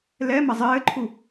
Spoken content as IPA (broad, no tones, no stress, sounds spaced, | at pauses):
l ɛ m ɐ zˤ ɘː ǃʰ u